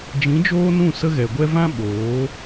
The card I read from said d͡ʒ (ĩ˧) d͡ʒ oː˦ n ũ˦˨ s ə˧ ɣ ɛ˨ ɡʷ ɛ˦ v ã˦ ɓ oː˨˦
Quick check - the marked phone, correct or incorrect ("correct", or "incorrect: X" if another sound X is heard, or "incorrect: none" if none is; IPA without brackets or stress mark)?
incorrect: ĩ˨˦